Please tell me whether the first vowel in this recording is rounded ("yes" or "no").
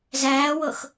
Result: no